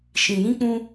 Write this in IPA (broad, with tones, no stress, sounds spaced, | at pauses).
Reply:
ʃ ĩ˧ j ĩ˦ k͡p ũ˦